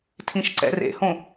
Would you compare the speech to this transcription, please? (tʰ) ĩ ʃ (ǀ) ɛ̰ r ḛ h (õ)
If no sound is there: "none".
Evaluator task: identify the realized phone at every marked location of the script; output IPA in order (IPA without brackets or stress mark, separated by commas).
tʰ, ǀ, õ